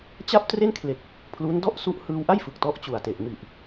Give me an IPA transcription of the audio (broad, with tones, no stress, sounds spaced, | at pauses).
t͡ɕ a˥˩ p̚ t r e˥˩ n kʰ l e˨˩ k̚ | pʰ l u˦˥ n d ɔ˥˩ ʔ s u˦˥ ʔ h ɯː˧ w ʔ a˥˩ j f ɯ˨˩ k̚ t ɔ˦˥ ʔ t͡ɕ u˨˩ a̯ t e˨˩ ʔ m i˨˩ ʔ